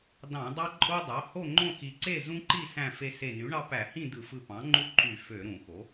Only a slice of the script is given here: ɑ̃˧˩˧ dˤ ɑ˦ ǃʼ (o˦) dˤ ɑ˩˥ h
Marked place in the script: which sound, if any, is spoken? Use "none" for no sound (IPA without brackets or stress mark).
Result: o˦